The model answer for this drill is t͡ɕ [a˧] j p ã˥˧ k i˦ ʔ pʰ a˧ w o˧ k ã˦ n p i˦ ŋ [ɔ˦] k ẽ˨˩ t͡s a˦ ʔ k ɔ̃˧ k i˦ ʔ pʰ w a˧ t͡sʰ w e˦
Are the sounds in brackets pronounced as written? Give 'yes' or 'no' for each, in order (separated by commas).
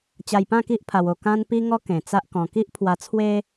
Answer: yes, yes